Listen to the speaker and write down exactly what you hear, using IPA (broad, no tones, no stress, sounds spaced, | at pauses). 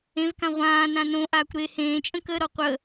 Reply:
ẽ v k ã ʁʷ ãː n ã n õ ʔ aː kʷ ɾ e h ẽː t͡ʃʼ ə̃ k ə ɾ ɔ qʷ ə